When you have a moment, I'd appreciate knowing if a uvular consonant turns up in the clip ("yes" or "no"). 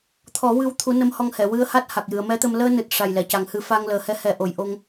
no